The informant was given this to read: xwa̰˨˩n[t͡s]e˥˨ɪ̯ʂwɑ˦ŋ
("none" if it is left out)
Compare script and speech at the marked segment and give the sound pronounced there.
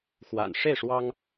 ʂ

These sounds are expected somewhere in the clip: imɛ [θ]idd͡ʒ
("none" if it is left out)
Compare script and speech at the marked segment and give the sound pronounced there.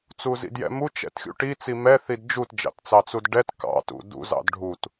θ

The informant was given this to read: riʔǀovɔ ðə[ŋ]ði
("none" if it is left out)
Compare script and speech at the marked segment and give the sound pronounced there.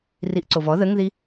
ŋ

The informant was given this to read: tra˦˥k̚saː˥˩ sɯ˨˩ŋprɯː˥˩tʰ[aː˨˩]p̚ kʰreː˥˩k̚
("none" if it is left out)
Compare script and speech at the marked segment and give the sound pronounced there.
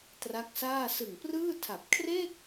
a˨˩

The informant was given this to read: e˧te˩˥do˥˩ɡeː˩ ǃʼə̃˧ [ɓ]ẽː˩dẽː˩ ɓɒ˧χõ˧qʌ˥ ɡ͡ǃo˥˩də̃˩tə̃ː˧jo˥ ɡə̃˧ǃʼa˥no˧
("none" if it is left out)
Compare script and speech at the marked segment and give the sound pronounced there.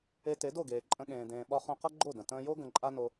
ɠ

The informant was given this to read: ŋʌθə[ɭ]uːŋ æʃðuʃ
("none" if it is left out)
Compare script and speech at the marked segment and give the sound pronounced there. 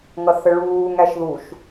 ɭ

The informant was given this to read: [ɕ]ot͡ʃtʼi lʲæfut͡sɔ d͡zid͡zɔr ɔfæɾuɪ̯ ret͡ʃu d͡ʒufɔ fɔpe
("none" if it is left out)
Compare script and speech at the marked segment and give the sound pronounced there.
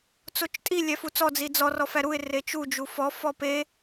t͡s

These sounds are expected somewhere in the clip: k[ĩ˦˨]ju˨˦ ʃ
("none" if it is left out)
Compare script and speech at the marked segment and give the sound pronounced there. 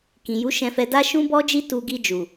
ĩ˨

